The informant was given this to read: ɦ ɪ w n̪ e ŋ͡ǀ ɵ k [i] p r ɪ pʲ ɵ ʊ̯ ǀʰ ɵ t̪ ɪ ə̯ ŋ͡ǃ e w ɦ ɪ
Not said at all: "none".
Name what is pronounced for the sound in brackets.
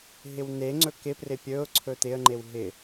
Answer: ɪ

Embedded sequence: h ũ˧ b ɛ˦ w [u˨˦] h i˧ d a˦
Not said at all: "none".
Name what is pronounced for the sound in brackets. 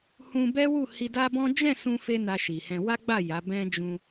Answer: u˦˨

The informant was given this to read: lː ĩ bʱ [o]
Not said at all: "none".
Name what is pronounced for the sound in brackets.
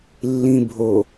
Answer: o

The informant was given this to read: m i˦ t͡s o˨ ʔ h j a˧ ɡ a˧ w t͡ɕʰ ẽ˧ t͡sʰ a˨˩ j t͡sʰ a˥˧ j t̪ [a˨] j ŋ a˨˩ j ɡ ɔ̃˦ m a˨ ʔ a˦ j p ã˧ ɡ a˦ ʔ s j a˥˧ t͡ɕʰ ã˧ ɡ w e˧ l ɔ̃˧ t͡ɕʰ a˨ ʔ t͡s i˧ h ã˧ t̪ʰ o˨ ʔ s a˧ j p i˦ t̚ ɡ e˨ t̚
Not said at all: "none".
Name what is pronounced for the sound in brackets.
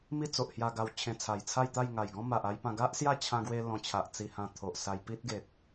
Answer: a˥˧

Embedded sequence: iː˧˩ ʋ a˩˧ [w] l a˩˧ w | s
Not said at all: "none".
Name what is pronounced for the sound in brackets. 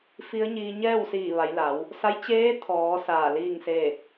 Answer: j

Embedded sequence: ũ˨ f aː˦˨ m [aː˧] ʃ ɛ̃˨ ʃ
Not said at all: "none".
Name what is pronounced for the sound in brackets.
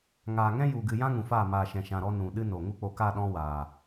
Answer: aː˨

